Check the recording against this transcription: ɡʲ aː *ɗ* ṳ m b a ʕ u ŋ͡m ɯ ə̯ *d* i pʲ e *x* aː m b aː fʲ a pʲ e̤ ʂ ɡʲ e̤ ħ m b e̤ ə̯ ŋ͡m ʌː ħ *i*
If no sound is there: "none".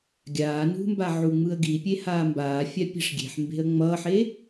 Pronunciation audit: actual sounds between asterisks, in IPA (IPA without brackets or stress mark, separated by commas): n, ɡ, h, e